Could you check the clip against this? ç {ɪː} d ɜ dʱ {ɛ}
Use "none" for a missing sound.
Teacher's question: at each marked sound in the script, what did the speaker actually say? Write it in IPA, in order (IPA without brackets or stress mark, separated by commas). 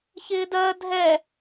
ɪː, ɛ